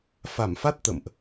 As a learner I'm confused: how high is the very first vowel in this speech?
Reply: low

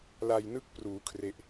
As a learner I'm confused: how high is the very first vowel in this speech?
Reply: low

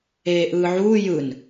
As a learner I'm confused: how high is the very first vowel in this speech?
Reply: mid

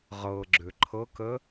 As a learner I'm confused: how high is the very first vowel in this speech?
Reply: mid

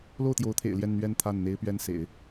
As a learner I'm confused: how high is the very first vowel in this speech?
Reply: mid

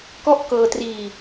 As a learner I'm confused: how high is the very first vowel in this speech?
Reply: mid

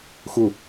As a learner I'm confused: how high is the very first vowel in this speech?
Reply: high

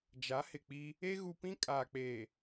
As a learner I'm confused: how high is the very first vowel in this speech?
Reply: low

